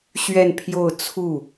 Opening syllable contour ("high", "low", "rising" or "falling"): falling